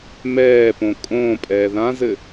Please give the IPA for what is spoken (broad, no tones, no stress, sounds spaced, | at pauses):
m ɛː p õ kʼ õː pʼ ɛː ð ã z ɘ